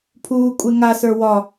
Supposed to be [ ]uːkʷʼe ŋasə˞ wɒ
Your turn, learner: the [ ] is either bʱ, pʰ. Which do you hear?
pʰ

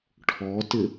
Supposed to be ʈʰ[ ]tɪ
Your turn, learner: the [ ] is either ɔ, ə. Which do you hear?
ɔ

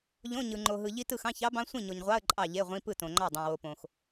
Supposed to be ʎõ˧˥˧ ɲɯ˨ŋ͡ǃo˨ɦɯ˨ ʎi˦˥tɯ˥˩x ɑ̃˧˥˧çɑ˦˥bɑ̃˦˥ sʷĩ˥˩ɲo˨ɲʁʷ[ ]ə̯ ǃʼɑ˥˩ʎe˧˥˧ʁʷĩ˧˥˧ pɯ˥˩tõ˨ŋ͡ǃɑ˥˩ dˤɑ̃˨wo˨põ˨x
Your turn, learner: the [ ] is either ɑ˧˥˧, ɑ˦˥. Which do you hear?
ɑ˧˥˧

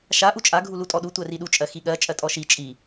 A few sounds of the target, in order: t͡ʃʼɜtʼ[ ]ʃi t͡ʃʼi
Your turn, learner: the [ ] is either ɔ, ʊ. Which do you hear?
ɔ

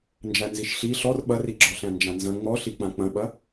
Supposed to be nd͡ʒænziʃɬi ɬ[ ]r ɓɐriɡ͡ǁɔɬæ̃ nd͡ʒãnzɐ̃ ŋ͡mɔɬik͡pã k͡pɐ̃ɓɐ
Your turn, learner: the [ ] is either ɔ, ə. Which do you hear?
ɔ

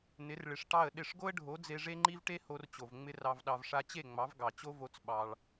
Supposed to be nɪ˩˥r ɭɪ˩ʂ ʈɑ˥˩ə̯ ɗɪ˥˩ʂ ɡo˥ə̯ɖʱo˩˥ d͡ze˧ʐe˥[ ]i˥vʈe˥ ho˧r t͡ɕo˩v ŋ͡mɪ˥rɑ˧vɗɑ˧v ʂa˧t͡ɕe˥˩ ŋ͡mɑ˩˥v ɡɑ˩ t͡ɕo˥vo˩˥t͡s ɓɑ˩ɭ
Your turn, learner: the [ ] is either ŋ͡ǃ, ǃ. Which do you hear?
ŋ͡ǃ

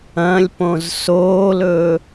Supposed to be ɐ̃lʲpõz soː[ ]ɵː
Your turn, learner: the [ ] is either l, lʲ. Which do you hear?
l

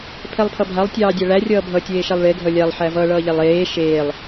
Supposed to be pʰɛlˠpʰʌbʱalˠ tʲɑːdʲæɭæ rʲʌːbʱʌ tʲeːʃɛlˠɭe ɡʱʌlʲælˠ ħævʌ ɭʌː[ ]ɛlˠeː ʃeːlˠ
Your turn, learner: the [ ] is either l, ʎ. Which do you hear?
ʎ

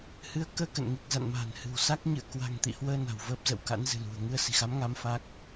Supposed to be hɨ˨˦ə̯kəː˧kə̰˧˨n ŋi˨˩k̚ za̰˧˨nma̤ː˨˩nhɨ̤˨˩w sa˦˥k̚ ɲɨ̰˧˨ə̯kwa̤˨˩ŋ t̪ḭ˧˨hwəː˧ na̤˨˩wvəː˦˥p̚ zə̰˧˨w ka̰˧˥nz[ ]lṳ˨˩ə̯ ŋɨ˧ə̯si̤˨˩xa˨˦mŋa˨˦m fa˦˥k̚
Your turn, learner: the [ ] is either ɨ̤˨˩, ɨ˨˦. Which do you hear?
ɨ̤˨˩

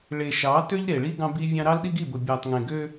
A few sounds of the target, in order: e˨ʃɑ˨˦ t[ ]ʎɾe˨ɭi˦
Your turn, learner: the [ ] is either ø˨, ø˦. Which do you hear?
ø˦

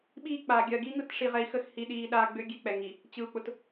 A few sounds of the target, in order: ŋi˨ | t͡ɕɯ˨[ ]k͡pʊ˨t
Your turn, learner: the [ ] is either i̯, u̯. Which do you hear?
u̯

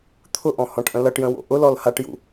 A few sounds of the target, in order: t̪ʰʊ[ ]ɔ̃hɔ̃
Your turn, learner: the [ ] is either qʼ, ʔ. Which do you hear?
ʔ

